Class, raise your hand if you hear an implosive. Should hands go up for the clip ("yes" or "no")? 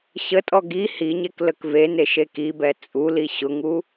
no